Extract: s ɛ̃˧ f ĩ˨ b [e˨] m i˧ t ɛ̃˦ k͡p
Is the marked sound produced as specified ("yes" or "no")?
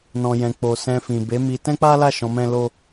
no